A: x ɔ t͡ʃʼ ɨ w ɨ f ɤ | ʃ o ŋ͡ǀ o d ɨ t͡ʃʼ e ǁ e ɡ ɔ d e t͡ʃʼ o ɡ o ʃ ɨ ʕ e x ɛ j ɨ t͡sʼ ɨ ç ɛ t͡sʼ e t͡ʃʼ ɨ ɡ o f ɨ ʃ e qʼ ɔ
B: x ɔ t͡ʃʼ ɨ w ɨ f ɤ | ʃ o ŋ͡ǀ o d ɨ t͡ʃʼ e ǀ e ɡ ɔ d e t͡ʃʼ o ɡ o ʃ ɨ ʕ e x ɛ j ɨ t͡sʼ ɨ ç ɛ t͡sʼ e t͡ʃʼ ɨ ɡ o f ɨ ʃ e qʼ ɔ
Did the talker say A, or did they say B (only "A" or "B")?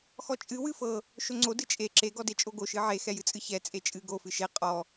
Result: A